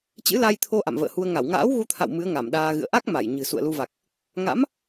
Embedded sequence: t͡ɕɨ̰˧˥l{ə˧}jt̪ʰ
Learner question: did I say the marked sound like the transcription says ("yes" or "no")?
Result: no